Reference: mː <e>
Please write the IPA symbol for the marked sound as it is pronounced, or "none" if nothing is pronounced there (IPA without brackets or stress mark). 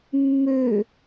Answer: ø